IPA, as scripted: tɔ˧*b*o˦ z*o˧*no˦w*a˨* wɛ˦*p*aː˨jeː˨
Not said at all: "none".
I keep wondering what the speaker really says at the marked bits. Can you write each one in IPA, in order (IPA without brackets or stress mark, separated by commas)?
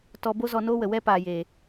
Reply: b, ɔ˧, ə˨, p